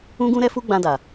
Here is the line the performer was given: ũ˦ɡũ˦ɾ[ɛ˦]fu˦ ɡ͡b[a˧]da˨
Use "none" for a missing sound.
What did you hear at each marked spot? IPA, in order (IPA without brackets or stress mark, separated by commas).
ɛ˦, ã˧